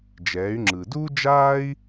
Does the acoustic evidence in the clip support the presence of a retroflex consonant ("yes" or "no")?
no